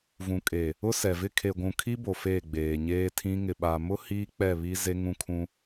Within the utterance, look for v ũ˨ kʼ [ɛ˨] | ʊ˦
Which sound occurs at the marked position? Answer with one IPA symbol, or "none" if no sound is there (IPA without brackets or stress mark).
e˨